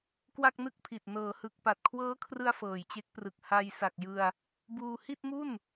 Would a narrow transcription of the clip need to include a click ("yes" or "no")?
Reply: no